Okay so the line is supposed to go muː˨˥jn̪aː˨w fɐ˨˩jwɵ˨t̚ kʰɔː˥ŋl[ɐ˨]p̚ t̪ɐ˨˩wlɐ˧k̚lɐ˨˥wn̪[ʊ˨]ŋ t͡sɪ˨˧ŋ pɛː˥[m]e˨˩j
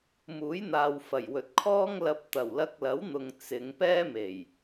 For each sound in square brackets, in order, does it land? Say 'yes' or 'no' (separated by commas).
no, yes, yes